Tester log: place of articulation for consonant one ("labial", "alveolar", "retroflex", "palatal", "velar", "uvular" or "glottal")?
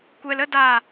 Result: velar